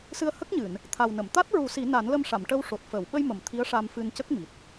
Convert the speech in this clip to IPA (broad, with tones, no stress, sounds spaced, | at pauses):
s ɨ˧ ə̯ h ə˦˥ k̚ ɲ ɨ˨˩˨ n | t̪ʰ a˨˩ w n ə˨˩˨ m t̪ a˦˥ t̚ ɹ u˨˩˦ s i˨˩˦ n a˨˩˦ n l ə˧ m ʂ a˨˩˨ m ʈ ə˧ w ʂ o˨˩ t̚ f əː˨˩˨ w ɓ ə˧ j m ə˨˩˨ m t̪ʰ i˧˥ ə̯ ʂ a˧ m f ɨ˧ n c ə˦˥ k̚ m i˨˩ t̚